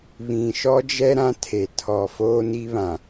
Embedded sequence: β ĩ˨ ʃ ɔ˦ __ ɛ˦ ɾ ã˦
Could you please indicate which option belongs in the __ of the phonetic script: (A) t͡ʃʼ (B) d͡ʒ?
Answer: B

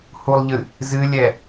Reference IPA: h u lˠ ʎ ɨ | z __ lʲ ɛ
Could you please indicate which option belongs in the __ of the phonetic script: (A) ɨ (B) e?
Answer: A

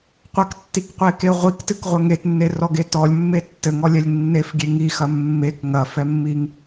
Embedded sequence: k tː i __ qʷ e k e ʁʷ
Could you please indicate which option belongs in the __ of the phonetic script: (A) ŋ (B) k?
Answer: B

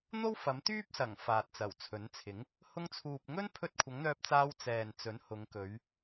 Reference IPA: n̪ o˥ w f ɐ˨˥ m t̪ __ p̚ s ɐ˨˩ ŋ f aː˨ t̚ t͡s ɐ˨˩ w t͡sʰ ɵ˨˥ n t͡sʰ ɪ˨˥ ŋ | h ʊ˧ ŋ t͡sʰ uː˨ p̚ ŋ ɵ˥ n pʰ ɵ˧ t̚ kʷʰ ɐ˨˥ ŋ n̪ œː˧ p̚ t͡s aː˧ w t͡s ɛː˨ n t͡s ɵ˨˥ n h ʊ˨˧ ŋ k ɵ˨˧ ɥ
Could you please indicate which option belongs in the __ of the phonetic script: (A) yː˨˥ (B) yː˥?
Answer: B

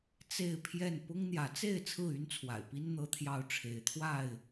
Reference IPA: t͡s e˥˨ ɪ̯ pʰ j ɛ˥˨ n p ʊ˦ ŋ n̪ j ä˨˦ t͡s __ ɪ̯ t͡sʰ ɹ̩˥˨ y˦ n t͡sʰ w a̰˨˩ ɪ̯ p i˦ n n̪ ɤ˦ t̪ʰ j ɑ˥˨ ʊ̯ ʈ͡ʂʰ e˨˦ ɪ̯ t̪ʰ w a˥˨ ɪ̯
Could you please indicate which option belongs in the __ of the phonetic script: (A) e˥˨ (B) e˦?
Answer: A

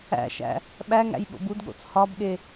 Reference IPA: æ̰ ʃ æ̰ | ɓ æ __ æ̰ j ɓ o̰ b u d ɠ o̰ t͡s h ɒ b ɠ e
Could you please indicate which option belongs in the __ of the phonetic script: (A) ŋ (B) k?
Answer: A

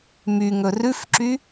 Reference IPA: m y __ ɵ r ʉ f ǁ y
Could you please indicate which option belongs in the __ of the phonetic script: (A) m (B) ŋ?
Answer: B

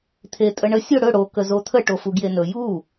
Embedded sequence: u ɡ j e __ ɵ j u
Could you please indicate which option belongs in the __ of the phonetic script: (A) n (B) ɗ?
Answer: A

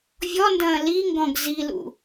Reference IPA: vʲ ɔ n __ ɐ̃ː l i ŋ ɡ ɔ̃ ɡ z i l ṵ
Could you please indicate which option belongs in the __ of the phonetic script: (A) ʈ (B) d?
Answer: B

